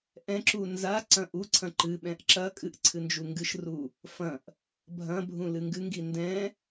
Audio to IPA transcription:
ʔ ɛ̃ ǁ u n z a ǀ ɐ̃ ʔ u ǀʰ ɐ̃ ǃ ɨ ɓ ɛ̃ ʔ ǁ ɐ kʼ ɨ ʔ ǀʰ ɨ n d͡ʒ u ŋ ɡ ɨ ʃ r u | f ɐ̃ ʔ | bʱ ɐ̃ bʱ ũ l ɨ ŋ ɡ ɨ ŋ ɡ i n d ɛ̃

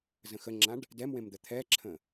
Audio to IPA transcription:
z ə̃ x ə ŋ͡ǁ ã ɖ | d ɛ m w ẽ m d̪ ə t̪ʰ ɛ ǁʰ ə̃

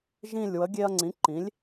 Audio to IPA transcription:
ʒ ĩ˦˨ lʲ w ə˨˥ ɡʲ e˦ ɐ̯ ŋ͡ǀ ĩ˨˥ ǃ ĩ˨˥ lʲ

